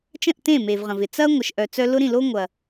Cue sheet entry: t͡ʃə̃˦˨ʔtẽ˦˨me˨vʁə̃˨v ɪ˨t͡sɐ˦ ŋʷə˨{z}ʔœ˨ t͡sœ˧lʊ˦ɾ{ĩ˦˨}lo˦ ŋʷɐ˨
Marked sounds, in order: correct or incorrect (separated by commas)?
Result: incorrect, correct